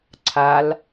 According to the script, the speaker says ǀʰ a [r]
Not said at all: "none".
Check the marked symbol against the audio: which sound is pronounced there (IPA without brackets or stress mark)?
l